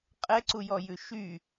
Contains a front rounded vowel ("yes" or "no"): yes